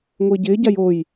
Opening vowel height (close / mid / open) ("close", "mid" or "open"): close